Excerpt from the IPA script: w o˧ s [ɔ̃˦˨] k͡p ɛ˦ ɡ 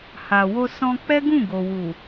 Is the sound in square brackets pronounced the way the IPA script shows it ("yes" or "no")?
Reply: no